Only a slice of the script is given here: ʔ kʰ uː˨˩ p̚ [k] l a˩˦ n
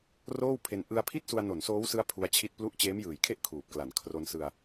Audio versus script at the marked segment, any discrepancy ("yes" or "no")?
no